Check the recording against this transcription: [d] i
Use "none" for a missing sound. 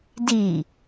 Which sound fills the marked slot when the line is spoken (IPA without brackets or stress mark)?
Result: d